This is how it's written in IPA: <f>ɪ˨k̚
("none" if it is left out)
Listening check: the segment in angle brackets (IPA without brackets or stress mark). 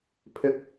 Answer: pʰ